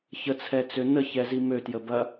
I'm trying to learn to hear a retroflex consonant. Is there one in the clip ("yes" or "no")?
no